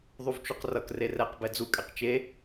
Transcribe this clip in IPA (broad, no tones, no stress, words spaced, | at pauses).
ðˤuvt͡ʃuqrʌk rerɛq bɛd͡zukʼɛq t͡ʃe